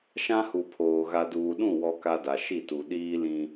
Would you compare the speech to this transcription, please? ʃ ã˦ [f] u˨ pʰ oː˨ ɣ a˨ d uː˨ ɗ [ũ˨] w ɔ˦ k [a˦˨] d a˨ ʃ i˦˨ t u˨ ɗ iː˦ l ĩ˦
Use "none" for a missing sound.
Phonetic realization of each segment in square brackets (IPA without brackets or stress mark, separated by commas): h, ũ˦˨, a˦